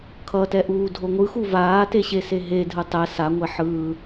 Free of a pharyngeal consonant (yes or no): no